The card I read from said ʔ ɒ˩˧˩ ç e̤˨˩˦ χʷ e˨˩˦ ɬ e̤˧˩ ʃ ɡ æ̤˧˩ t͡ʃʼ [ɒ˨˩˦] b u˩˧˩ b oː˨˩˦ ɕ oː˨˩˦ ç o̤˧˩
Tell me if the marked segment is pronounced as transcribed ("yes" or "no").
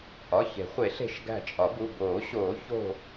yes